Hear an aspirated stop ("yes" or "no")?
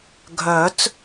no